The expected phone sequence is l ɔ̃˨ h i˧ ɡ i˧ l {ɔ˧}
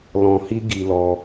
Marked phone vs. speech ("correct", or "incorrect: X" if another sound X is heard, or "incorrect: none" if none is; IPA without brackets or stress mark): correct